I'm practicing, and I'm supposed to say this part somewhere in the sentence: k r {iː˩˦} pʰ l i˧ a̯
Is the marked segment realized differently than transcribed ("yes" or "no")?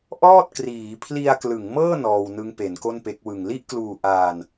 no